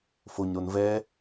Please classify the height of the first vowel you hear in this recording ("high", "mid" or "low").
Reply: mid